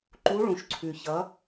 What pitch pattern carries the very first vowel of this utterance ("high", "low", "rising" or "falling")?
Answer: rising